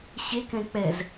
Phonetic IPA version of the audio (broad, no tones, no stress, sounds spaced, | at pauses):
ɕ e k ɛ̃ k͡p ɛ z